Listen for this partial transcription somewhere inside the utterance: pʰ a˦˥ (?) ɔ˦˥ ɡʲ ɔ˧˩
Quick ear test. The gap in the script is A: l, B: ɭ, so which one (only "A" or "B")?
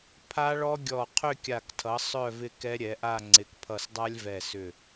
B